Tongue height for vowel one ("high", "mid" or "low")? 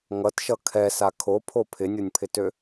mid